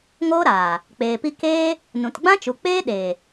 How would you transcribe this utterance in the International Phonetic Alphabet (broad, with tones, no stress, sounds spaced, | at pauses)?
ŋ oː˦ ɾ aː˨ | k͡p eː˨ p i˧ k eː˦ | n ũ˨ t ɡ͡b ã˦ t͡ʃ u˨ k͡p eː˦ ɗ eː˨